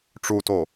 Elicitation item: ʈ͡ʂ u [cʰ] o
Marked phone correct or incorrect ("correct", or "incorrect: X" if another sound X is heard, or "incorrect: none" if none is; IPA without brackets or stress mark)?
incorrect: t